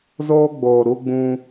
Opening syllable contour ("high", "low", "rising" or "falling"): high